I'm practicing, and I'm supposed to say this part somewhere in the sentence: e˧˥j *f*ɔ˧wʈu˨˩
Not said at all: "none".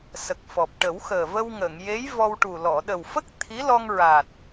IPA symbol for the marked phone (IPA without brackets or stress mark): v